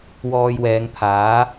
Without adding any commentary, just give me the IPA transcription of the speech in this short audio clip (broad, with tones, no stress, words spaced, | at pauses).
wɔː˧jwɛː˨˧ŋpʰaː˨˥